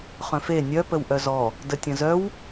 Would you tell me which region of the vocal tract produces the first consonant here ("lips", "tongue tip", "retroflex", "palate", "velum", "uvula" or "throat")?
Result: uvula